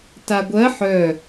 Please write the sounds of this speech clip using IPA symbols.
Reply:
t a ɡʷ ɜ ħ œ

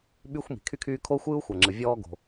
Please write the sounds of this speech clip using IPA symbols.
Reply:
ɓ y˥ xʷ m i̤˩ kʰ y˥ kʰ yː˥ kʰ o˥ xʷ ɯː˥ u̯ xʷ ɐ˩ ŋ͡ǁ ɯ˩ vʲ ɔː˥ ɡ o̤˩

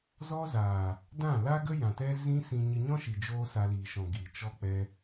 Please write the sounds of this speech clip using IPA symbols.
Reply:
z ɔ˦ z aː˨ | d ã˦˨ l a˦ ɡ ə˦ j ã˨ t ɛ˦ z ĩ˦ s ĩ˧ ɲ ɨ˧ ɲ ɔ̃˦ ʃ i˨ d͡ʒ oː˦ s a˧ l iː˨ ʃ ɔ̃˨ ɡ i˨ t͡ʃ ɔ˦ k͡p ɛ˦

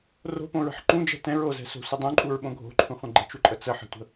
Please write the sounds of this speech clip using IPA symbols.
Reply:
r o̤ p õ ɹ ə̤ ħ ǃ ũ d͡ʒ ɛ̤ t ɛ̃ ɹ o z ɛ̤ s o̤ sʷ ə dˤ ũ ǃʼ u ɹ ɓ õ ɡʱ o̤ ǃʰ ũ χʷ ə̃ ɡ͡ǃ ə̤ t͡ʃ u ǃʼ ə t͡s ə ħ ə̤ tʷ ə̤

